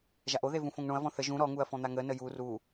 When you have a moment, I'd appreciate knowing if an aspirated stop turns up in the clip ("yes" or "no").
no